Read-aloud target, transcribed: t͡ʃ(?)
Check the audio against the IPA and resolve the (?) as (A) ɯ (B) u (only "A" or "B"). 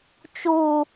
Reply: B